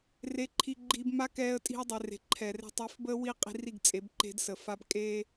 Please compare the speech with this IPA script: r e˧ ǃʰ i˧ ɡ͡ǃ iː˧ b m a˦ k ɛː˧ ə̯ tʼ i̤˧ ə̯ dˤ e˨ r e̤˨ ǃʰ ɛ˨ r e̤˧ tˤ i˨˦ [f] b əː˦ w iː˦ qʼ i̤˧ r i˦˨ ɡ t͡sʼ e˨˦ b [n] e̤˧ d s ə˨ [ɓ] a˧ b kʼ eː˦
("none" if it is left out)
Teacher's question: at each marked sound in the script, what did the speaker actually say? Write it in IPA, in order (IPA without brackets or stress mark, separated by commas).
f, ǃ, f